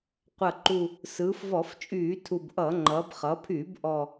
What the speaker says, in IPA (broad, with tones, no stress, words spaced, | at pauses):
qʷɐ˨˩ǃu˨˩ | sɯː˩˧fvɔ˧˩˧ft͡ʃʼyː˧˩˧ tʰu˨˩bʔʌː˧˩˧ŋ͡ǃʌː˩˧b χʌ˩˧pʰyː˧˩˧b ʔɔ˨˩